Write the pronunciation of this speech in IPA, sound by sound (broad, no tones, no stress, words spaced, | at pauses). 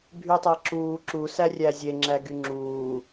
bʱytˤæǁuː ǁu særʲæzʲe ŋ͡ǁæɡyŋ͡ǁuː